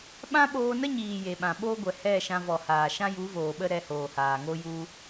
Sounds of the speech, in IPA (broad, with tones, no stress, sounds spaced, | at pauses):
ɓ ã˦ ɓ oː˧ n ə˦ ɲ iː˨ j e˨ ɓ ã˨ ɓ o˦ ɡʷ ɛ˨ h ɛ˦˨ ʃ ã˧ v ɔ˨ h aː˨ ʃ ã˦ j u˨˦ v oː˨ ɓ ə˦ ɾ ɛ˧ h oː˨ h aː˨ ŋ o˦ j u˦